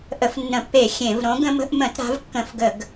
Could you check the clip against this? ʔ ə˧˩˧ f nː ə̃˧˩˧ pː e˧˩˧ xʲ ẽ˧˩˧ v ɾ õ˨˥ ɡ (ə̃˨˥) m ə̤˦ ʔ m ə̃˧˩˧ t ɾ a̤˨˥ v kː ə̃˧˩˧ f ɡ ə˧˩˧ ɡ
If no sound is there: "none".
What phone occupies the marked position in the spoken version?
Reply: ə̃˦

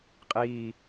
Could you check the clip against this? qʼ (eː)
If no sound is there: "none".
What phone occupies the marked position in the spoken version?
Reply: iː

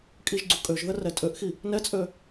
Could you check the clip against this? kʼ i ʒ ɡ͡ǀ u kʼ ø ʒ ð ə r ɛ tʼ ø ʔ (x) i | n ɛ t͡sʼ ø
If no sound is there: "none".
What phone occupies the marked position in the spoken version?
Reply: x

